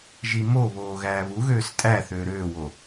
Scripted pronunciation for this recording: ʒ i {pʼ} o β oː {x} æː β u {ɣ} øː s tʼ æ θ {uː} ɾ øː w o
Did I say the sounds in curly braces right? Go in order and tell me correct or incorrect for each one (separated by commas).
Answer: incorrect, incorrect, correct, incorrect